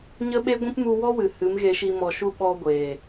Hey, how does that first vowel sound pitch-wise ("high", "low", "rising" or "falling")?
high